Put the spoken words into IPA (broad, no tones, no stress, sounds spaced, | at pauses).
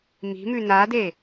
m i̤ m ʉ n a d e